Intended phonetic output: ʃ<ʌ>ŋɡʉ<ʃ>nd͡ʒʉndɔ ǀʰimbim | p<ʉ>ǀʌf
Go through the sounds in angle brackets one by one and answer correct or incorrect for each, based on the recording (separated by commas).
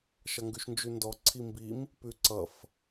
correct, correct, correct